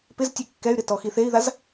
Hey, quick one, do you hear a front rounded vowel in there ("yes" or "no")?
yes